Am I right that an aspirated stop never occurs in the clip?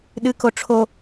no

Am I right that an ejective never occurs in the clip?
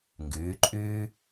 no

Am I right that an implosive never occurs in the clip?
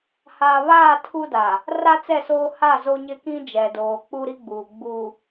yes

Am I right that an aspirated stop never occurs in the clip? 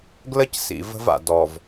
yes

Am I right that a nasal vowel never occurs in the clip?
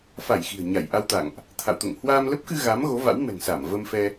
yes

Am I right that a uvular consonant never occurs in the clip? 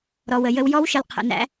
no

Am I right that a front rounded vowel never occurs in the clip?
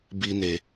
yes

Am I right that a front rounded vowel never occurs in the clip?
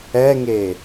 yes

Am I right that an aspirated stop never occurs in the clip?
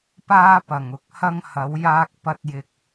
yes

